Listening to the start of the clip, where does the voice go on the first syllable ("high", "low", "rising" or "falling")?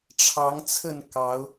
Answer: rising